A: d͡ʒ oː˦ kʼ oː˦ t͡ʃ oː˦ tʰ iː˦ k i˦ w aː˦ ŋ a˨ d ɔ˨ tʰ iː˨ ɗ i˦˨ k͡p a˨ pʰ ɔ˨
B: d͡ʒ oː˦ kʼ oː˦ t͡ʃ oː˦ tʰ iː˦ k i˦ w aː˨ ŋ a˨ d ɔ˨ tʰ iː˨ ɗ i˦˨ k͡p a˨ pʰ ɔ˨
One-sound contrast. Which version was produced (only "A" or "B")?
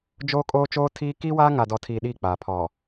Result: A